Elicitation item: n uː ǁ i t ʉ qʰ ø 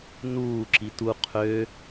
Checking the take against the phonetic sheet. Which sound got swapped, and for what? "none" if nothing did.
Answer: ʉ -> u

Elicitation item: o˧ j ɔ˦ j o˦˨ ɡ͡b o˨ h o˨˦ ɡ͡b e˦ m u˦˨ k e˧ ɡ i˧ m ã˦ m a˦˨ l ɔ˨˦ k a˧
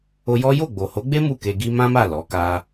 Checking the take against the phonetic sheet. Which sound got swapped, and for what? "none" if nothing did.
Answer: none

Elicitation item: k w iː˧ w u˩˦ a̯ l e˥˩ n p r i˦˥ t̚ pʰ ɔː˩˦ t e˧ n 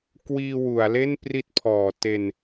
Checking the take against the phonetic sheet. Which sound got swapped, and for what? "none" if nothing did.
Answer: none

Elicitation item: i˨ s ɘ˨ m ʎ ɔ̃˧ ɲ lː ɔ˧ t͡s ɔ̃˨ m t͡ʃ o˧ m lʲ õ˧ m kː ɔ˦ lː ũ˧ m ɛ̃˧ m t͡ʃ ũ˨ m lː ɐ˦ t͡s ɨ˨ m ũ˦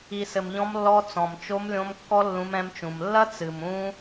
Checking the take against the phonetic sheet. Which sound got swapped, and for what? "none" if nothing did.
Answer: ɲ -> m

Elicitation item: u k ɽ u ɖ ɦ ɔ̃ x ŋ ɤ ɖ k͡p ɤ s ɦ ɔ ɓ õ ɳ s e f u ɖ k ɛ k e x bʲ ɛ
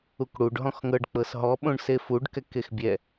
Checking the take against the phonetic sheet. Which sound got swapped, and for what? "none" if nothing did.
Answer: none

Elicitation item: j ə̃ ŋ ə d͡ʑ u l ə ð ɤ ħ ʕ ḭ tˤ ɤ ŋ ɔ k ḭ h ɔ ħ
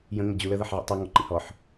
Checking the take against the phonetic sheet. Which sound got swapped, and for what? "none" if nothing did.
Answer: k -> ǃ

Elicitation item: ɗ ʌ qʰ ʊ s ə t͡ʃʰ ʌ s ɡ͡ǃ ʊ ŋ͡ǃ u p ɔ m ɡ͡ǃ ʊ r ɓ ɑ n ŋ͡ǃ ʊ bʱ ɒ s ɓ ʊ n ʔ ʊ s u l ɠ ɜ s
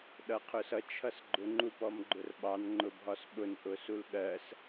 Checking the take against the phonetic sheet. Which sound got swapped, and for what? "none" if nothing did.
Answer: ə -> ʌ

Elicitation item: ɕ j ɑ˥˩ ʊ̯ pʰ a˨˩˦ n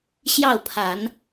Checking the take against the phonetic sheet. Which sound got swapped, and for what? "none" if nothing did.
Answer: none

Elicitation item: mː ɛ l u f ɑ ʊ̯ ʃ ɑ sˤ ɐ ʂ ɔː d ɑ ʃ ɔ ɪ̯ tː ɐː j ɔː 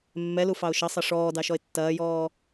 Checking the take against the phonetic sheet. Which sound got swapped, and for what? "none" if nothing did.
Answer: none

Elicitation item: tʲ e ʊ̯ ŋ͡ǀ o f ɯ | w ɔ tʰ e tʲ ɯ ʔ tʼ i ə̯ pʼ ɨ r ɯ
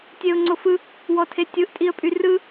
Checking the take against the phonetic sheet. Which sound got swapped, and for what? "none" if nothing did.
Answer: ɨ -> y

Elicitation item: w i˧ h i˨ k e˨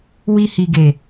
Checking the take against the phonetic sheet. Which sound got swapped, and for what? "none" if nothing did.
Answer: k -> ɡ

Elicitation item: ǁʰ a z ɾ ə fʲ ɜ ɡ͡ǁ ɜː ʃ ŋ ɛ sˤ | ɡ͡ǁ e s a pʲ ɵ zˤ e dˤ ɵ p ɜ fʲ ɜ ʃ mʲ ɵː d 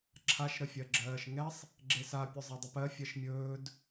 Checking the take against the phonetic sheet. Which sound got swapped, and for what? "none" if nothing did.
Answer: z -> ʃ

